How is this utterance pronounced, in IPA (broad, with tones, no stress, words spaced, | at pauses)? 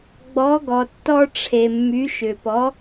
ɡ͡bɔ˩˥ɡɔ˩tːɔ˧ ʈ͡ʂʰe˩mːy˩˥ʃʏ˩pɔ˩˥